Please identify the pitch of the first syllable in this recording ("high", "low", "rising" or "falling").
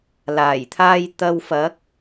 low